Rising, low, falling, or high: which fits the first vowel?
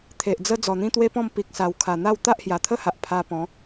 low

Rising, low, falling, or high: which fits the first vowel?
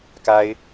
high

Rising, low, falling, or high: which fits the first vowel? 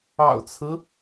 low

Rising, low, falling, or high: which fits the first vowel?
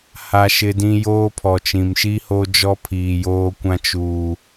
high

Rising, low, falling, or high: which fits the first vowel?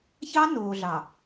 high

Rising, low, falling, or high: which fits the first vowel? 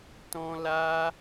high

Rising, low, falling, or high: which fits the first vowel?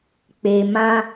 low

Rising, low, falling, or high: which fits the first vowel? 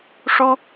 high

